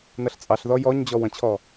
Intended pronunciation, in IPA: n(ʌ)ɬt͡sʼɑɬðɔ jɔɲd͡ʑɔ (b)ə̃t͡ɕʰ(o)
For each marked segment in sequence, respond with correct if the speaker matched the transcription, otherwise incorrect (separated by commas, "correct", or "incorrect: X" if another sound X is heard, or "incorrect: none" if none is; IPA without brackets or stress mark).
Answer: correct, incorrect: w, incorrect: ɔ